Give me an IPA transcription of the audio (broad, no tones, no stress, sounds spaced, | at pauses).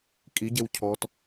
kʼ i ɟ e w cʰ ɔ t